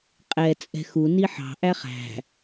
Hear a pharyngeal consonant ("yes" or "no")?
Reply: yes